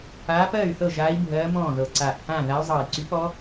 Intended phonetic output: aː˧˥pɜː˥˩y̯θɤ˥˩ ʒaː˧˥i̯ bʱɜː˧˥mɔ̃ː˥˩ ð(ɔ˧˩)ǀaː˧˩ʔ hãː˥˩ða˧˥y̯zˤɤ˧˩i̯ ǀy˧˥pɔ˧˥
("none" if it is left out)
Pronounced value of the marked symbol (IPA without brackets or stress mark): ɤ˧˩